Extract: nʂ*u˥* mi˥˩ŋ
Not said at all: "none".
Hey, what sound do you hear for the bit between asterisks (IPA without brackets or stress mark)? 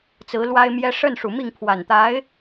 u˨˩